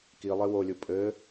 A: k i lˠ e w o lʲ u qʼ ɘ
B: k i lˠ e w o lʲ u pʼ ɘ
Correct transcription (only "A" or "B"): B